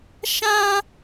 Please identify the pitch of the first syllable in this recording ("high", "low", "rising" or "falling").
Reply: high